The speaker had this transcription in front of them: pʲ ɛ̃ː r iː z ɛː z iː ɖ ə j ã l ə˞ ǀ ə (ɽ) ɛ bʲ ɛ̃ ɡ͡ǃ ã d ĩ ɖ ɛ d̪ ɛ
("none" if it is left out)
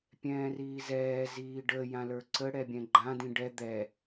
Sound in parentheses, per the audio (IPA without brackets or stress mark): ɽ